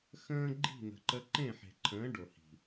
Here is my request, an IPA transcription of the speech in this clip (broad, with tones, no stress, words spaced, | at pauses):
xə̃ː˦ɡ͡ǃi̤˦˨n̪ə̤˨ǃə˧ ǃẽ˦˨ħe̤˨ǃʰə̃ː˨˦ ɖo˨hi̤˨